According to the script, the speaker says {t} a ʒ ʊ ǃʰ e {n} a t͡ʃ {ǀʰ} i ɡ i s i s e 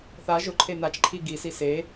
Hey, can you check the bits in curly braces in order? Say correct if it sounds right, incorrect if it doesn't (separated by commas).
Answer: incorrect, correct, incorrect